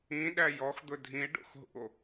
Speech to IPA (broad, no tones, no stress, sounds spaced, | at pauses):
ĩ ɗ æ j ɔ x d̪ ʊ dʱ ĩ e̯ ɖ o̰ x ɦ ṵ o̯